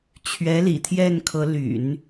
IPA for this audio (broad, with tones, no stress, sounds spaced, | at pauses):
t͡ɕʰ ɥ ɛ˧˥ l ḭ˨˩ t̪ʰ j ɛ˥˩ n kʰ ɤ˧˥ l y̰˨˩˦ n